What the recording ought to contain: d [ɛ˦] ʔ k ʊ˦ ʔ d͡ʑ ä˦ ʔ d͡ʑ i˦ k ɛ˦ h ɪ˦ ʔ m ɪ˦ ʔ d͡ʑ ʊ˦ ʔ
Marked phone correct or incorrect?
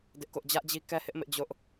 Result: incorrect: ɪ˦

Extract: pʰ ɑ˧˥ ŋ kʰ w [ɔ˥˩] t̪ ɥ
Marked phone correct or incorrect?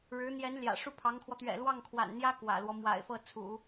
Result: incorrect: ɔ˧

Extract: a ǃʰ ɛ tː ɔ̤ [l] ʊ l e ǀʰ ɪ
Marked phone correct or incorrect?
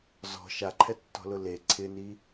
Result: correct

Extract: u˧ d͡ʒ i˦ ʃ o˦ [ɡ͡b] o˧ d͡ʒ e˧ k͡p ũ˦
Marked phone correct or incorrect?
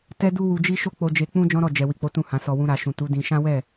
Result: incorrect: k͡p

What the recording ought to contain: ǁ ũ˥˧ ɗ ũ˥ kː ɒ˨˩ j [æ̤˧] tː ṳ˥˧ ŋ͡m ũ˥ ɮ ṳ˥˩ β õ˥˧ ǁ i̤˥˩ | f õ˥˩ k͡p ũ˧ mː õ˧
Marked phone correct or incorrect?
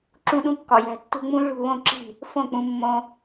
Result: correct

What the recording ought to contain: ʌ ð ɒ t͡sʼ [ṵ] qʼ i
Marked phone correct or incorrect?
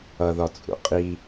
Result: correct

